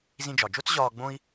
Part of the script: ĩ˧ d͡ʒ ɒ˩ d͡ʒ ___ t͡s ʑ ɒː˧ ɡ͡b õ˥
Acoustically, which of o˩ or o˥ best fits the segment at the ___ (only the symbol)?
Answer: o˥